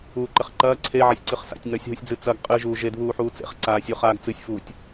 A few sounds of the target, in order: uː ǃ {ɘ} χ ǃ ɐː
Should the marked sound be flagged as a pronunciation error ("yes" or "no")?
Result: no